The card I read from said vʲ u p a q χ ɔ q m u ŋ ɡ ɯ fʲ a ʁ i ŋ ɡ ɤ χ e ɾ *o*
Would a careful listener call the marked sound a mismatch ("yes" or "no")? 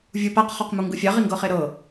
yes